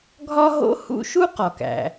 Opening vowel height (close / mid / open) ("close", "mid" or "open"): open